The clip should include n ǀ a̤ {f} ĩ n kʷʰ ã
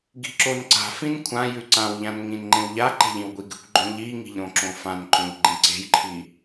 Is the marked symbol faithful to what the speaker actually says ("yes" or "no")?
yes